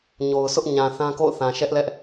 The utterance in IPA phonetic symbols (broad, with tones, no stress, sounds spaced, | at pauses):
ɲ o˨ ʊ̯ sʰ ʊ˦ ʔ ɲ ã˨ θ ã˦ k o̰˦˨ ʊ̯ θ ã˨ ʃ ɛ˦ ʔ l ɛ˦ ʔ